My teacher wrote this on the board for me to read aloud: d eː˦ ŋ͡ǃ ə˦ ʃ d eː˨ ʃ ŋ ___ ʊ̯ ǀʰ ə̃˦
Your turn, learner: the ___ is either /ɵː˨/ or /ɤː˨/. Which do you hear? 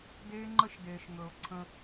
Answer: ɵː˨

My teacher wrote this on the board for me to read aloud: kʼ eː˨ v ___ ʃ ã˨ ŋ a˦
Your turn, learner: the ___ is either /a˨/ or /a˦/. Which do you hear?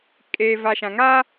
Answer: a˨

